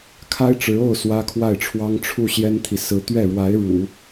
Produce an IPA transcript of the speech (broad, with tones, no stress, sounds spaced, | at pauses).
kʰ a˥ ɪ̯ ʈ͡ʂ ɻ̩˧˥ o˥˩ ʊ̯ s w ä˥ kʰ w a˥˩ ɪ̯ ʈ͡ʂʰ w ɑ˥ ŋ ʈ͡ʂʰ u˥˩ ɕ j ɛ˥ n t̪ʰ i˨ s ɹ̩˥ t̪ ɥ ɛ˥˩ ɻ w a˧˥ ɪ̯ ɻ ṵ˨˩˦